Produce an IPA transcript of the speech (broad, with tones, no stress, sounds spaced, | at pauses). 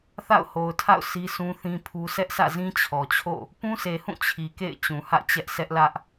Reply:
θ a̰˦˨ ʊ̯ h o˨ ʊ̯ tʰ a̰˦˨ ʊ̯ s i˦ sʰ ũ˦ θ ĩ˦ pʰ u˦ s ɛ˦ ʔ s ä̰˦˨ z ĩ˦ t͡ɕʰ ɔ˨ t͡ɕʰ o̰˦˨ | p ũ˦ sʰ e˨ h ũ˦˨ t͡ɕʰ i˨ k ḛ˦˨ ɪ̯ t͡ɕ ũ˨ h ä̰˦˨ t͡ɕ ɛ˦ ʔ sʰ ɛ˦ ʔ l ä˦ ʔ